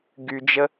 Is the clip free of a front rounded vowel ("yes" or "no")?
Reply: no